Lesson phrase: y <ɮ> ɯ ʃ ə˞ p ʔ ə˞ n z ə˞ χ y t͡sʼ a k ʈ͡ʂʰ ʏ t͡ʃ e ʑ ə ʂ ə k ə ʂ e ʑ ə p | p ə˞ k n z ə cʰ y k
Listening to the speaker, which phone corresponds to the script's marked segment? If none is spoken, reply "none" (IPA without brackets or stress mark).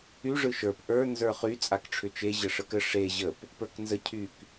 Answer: ʐ